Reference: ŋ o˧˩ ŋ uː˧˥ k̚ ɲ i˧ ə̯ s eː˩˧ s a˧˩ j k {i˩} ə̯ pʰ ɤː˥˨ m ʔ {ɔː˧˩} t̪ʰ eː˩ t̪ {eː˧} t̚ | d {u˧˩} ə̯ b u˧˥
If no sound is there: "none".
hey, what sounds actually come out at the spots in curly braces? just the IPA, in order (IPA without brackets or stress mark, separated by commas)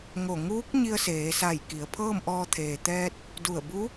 i˩˧, ɔː˧, ɛː˧, u˧˩